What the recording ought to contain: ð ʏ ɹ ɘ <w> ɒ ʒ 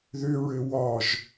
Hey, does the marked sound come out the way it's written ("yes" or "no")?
yes